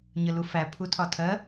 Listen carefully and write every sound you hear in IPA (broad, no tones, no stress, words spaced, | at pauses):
ɲəlufæ pʰutʰɒtʰɜ